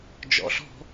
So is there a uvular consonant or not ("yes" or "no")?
no